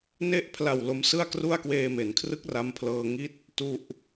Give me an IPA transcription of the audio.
n e˦˥ ʔ pʰ l a˨˩ w l o˦˥ m s ɯ˥˩ a̯ k r u˥˩ a̯ k w eː˧ m e˩˦ n kʰ r ɯ˦˥ k̚ r a˦˥ m pʰ l ɤː˧ ŋ i˦˥ t̚ | t u˥˩ ʔ

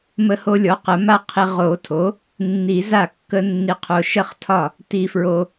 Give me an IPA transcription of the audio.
m ə˦ h o˦ lʲ ɔ˩˥ q ə˨˩˦ m a˦ qʰ i˨ ʁ o˨˩˦ tʰ o˩˥ | nː i˨˩˦ z a˥˩ kː ə˦ nː i˨ qʰ o˨ ʃ ə˥˩ χ tʰ ɒ˥˩ | t i˨ f ɹ o˨

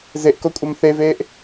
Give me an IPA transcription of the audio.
z e ʔ k o kʷʼ œ m θ e v eː ʔ

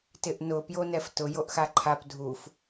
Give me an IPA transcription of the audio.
t ɪ ʔ n ʊ p j o n ɛ f t ʊ j o ʔ x a ǃʰ a p dʱ u f

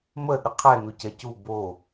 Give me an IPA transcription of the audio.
m ə ɗ ə qʰ ɛ n u c ɛ c u b o

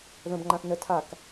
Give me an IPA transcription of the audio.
ð ə̃ b ŋ͡ǃ ã θ n ə tʰ a k

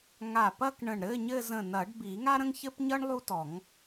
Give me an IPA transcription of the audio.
ŋ a˧˩ p ɐ˥˧ k ɳ ə̃˧˩ ɳ ɾ ɘ˧˥˧ ɲ ɘ˥˧ z ə̃˧˩ n ɐ˨˩˦ ɖ b i˨˩˦ ŋ a˥ ɾ ə̃˥ ŋ ç ɘ˥ p ɲ ʌ˥ ɳ lˠ u˥ t ɔ˨˩˦ ŋ

